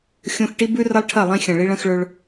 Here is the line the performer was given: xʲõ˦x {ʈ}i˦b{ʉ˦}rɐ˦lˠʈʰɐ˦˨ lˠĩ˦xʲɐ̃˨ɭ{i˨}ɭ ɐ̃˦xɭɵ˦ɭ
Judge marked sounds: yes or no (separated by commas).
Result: yes, yes, no